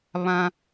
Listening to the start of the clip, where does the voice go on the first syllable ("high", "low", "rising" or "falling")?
high